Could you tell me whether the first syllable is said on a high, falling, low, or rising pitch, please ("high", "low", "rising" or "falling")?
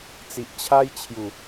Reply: low